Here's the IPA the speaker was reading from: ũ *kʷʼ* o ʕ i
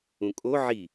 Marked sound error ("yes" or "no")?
yes